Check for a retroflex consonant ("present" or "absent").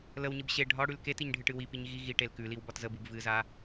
present